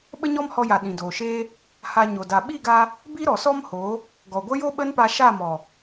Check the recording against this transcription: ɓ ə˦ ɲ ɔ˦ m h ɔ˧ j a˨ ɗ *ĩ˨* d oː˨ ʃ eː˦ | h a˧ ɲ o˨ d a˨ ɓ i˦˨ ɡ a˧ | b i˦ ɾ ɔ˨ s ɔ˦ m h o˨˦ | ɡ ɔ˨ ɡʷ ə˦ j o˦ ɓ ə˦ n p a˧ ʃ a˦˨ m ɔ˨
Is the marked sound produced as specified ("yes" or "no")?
yes